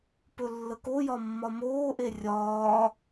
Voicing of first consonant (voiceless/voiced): voiceless